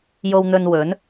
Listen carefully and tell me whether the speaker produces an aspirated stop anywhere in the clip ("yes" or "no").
no